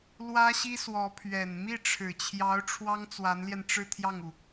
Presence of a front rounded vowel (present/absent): absent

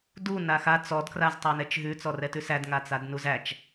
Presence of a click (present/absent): absent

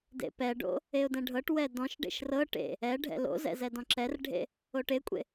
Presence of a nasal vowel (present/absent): present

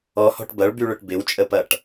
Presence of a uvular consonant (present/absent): absent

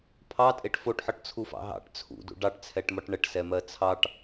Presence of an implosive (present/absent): absent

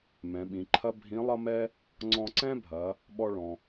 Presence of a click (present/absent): present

